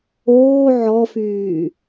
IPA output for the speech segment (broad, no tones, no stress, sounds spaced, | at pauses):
oː ʕ ɔ f yː